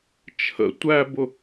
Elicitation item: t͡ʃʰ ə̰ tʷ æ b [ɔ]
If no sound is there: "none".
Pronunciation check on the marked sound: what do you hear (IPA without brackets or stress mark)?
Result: ʊ